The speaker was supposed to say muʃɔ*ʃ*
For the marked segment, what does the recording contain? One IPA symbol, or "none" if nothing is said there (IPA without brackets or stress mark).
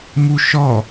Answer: none